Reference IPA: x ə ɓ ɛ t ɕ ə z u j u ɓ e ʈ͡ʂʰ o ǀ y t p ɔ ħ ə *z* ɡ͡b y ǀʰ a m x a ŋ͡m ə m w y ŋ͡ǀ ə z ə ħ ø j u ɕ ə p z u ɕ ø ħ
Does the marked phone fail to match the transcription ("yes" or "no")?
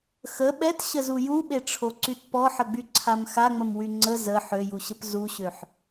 yes